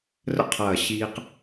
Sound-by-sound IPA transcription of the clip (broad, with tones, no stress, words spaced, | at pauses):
rə̰˧qʰɐː˨˩ ɕiː˧q